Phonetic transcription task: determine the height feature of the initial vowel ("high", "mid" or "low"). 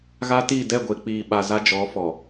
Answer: low